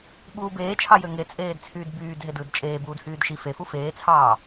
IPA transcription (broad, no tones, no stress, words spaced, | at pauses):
ɓuːbeːt͡ʃʰɑjø ŋe t͡sʼeːdt͡sʰyːdbyːd ɦedɯːdt͡ʃʼeː buːdhyːdʃi fe fufeːt͡sʰɑː